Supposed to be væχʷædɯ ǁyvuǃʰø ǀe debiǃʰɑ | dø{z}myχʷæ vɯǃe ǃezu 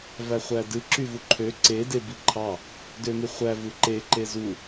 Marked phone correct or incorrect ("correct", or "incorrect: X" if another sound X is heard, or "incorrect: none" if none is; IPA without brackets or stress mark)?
incorrect: none